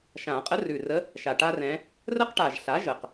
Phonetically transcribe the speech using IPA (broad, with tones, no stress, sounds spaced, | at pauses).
ʃ ã˨˩˦ qʼ ə˧˥ r ʉ˨˩ r ə˧˥ | ʃ a˨˩ ʈ a˥ r ɛ̃˧˥ | r ə˥ q ʈ a˨˩ ʒ ɬ a˩˥ ʒ ə˨˩ q